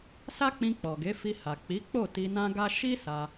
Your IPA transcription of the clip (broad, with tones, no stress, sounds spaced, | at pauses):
s a˦ k͡p ĩ˧ k͡p ɔ˨ ɡ e˨˦ f i˧ h a˨ k͡p i˨˦ k͡p o˦˨ t i˧ n ã˦ ɡ a˦ ʃ i˦ s a˧